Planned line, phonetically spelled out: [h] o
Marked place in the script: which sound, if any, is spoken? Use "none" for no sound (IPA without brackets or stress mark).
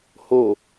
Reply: h